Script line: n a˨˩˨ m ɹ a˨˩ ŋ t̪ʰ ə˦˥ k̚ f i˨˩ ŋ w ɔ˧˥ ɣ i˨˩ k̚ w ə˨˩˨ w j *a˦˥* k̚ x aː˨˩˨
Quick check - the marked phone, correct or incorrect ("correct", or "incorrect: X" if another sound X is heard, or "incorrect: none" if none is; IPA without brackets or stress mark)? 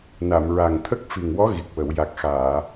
incorrect: a˨˩